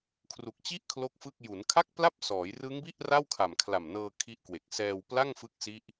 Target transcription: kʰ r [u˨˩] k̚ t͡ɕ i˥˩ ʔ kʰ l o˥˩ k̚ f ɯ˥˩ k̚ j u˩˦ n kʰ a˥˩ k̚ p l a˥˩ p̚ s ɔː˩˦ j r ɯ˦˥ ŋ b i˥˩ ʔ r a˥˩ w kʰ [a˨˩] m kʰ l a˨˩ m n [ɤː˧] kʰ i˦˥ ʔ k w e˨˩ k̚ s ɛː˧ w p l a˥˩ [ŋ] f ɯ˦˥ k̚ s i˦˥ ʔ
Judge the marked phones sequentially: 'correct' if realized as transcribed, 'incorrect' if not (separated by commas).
correct, correct, correct, correct